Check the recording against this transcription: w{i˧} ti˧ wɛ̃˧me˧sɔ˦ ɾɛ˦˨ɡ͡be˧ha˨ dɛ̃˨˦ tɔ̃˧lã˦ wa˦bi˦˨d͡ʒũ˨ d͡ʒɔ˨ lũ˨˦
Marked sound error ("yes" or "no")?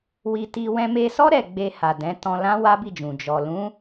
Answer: no